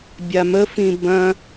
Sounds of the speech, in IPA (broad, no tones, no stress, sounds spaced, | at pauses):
bʲ a m ə f ĩ b ɐ̃